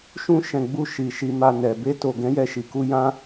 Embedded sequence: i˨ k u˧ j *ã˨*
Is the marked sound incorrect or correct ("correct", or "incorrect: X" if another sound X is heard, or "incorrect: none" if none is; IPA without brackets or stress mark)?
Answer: incorrect: ã˦